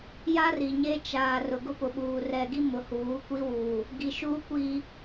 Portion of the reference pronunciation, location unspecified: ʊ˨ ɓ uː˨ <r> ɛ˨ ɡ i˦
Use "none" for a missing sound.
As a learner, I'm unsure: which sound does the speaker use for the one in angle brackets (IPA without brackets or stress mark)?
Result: r